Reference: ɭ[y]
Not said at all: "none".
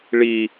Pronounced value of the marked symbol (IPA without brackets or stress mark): i